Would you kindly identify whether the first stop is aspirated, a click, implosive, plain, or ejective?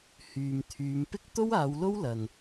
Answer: aspirated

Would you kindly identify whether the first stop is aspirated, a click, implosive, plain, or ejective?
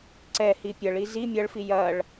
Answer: click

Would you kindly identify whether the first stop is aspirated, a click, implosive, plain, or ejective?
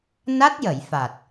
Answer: plain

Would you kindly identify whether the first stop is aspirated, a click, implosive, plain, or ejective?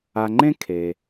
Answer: click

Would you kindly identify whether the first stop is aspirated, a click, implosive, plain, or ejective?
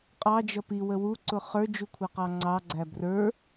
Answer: ejective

